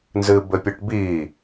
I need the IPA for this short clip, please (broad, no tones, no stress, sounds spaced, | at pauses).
n z ɨ b ɘ pʲ o ʈ b i